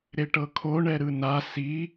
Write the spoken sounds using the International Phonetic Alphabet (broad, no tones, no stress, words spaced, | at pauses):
ɾeʈɤkʰo ɳɛɾɯna si